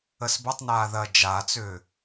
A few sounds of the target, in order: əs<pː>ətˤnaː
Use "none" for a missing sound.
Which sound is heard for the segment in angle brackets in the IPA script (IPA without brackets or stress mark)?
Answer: b